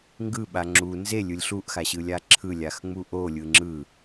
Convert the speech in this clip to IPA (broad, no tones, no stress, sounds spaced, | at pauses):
ŋ ɡ ɯ ɓ a ŋ͡ǁ u n z e lʲ ɯ lʲ ɬ u ʔ x a ɕ ɯ lʲ a ǁʰ ɯ lʲ a x ŋ͡m u ʔ o lʲ ɯ ŋ͡ǁ ɯ